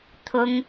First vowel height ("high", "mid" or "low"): high